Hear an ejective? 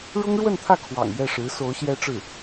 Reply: no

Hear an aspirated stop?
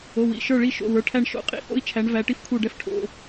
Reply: yes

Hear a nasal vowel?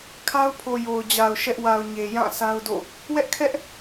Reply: yes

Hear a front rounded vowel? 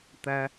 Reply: no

